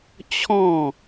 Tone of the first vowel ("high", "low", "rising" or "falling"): falling